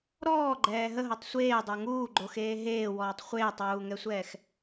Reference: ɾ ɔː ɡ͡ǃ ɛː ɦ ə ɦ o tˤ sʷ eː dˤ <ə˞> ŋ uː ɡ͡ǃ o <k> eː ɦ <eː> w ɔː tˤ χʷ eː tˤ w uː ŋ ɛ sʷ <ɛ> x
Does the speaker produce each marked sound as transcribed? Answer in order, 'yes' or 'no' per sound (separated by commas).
yes, no, yes, no